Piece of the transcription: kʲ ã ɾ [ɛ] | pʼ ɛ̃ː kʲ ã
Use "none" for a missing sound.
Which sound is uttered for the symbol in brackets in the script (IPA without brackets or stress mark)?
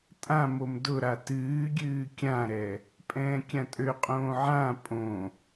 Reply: ɛ